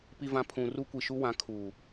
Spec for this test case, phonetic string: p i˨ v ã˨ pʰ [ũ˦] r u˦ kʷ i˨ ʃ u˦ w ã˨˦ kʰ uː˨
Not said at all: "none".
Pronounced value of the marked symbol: ũ˨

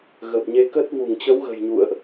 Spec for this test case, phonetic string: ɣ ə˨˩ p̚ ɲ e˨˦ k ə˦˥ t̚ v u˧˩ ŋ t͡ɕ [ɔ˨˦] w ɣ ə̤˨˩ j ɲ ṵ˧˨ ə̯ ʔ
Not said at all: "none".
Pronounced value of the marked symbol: ə˨˦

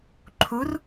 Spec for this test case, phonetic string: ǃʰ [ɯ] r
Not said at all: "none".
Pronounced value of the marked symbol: u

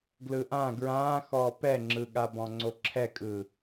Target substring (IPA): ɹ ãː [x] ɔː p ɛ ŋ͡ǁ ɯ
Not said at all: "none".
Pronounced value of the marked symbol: x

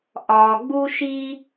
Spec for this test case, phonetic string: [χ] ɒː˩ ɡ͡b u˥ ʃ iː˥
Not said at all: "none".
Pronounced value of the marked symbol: ʔ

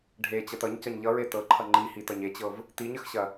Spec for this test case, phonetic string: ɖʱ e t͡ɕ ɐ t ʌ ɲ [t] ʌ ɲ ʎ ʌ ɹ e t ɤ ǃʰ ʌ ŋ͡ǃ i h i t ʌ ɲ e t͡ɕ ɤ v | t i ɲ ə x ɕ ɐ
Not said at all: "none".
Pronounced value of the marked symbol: c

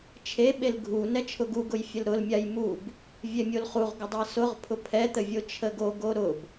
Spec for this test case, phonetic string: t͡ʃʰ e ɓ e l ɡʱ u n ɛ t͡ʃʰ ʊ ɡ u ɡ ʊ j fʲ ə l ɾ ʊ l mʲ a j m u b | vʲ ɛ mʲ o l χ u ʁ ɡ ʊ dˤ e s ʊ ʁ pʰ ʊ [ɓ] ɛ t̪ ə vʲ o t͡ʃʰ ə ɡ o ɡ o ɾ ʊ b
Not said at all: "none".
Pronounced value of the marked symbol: pʰ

